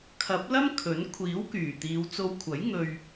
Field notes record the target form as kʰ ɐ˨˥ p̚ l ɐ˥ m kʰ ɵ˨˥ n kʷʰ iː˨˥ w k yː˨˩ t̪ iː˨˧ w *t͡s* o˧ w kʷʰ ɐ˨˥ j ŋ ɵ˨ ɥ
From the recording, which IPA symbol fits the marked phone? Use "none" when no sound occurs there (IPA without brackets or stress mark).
t͡s